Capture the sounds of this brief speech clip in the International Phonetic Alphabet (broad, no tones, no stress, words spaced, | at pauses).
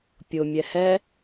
pʲʊ mʲɛhɛ